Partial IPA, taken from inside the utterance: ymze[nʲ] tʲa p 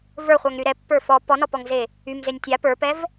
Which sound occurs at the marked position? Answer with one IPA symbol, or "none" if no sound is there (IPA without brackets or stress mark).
nʲ